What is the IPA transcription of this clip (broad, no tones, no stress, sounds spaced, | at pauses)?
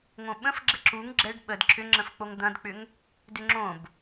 ŋ õ ɓ ə̃ f ɡ͡ǁ ə ǁ u ŋ ɡ͡ǁ ɛ ɖ ɓ ə d ǁʰ ʏ ŋ͡ǁ ə̃ f k͡p o ŋ d̪ ɐ̃ d k͡p ʏ ŋ | d ʏ ŋ͡ǁ õ b